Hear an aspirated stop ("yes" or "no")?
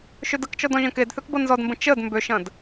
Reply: no